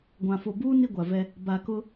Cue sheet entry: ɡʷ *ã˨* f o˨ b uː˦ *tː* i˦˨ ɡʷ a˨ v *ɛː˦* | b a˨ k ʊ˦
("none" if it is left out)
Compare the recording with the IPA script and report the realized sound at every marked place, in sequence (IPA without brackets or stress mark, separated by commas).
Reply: ã˨, n, ɛ˦